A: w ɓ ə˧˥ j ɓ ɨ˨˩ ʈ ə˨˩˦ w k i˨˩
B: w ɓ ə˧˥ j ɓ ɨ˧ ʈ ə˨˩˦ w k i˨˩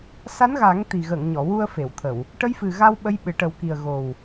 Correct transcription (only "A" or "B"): A